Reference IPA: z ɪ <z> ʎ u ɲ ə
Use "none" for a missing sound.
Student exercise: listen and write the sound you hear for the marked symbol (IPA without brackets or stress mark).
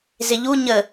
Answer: none